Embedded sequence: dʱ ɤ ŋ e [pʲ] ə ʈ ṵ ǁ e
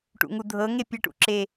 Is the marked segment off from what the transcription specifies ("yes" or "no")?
no